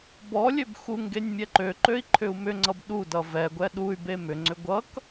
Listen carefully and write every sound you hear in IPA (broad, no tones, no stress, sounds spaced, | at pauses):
b ɔ lʲ ø b x u ŋ ɡ e nʲ mʲ ɛ ǃ ø ǃ ø i̯ ǃʰ ʏ u̯ m ʏ ŋ͡ǀ ʌ b ɗ u d ʌ v ɛ ɡʷ ɛ ɗ u y̯ b e m ʏ ŋ͡ǀ ʏ ɡʷ ʌ k